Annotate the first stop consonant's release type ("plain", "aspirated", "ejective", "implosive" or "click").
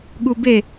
implosive